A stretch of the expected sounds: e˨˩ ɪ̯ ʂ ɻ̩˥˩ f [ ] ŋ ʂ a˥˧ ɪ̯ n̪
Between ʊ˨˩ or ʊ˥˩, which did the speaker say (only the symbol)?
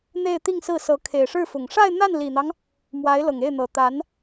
ʊ˨˩